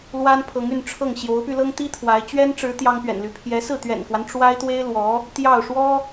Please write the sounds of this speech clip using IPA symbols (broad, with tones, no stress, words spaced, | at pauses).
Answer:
lwa˥npʰɤ˧˥ŋy˥˧nʈ͡ʂʰɤ˥˩ŋ ɕjo˧˥ʊ̯py˧lɤ˥ŋt̪i˥ t̪ʰwa˧˥ɪ̯ t͡ɕɥɛ˥nʈ͡ʂɻ̩˧˥ t̪jɑ˥ŋpɥɛ̰˨˩nly˧˥ pʰjɛ˧˥sɹ̩˥˩ t̪ɥɛ̰˨˩nkwa˦n ʈ͡ʂwa˥ɪ̯t̪we˥ɪ̯lwɔ˧˥ | t̪jɑ˥˩ʊ̯ ʂwɔ˥